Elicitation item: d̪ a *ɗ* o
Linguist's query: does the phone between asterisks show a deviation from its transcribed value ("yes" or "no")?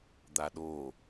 no